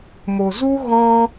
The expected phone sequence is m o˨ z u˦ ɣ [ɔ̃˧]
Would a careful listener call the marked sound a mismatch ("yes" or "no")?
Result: no